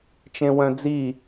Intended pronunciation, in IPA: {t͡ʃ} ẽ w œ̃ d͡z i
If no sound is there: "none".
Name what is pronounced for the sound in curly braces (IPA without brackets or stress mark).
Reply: t͡ʃ